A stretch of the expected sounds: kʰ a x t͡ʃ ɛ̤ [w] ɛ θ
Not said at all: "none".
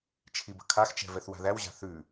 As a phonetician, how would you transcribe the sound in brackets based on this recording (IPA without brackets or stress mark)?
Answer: v